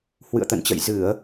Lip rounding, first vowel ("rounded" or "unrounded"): unrounded